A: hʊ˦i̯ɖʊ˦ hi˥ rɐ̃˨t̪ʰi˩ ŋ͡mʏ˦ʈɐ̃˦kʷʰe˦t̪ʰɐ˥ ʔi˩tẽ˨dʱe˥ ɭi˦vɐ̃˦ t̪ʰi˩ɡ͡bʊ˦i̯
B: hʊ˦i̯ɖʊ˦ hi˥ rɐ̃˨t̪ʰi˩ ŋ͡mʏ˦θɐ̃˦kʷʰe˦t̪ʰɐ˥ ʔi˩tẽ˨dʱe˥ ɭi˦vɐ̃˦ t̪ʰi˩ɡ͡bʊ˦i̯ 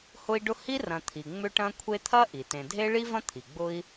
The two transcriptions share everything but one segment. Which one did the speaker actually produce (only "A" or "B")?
A